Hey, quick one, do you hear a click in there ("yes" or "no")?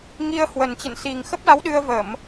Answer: no